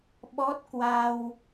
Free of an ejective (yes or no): yes